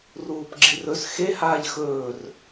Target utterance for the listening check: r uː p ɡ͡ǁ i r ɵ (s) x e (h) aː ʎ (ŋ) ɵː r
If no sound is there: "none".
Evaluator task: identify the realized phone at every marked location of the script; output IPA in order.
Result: s, h, x

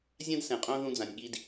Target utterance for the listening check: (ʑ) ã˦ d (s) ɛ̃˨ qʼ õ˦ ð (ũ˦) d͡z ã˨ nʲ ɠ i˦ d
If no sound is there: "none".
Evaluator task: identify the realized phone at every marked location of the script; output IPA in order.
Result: zʲ, s, ũ˦

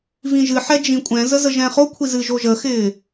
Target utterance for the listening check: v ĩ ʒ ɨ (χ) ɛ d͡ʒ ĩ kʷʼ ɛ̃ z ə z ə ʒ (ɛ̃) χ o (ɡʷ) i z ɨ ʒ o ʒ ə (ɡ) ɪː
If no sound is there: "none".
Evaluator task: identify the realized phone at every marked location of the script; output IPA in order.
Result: ħ, ɛ̃, kʷʰ, x

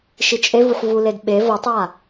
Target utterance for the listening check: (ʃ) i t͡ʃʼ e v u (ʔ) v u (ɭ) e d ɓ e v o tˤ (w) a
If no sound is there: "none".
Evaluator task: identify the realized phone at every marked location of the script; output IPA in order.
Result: ʃ, ħ, l, w

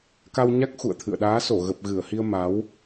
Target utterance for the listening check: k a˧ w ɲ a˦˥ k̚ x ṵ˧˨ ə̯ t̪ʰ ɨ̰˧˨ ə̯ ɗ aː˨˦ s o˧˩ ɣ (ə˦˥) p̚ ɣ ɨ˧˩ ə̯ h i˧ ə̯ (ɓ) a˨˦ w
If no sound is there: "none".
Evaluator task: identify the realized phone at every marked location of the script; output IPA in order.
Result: ə˨˩, m

